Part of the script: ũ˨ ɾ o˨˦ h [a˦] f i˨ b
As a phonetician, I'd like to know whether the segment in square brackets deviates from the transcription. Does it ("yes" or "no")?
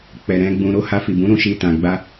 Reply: yes